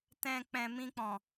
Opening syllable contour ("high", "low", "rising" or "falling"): low